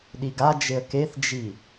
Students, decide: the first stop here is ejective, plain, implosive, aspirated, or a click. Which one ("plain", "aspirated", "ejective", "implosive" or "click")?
implosive